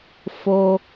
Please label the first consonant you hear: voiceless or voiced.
voiceless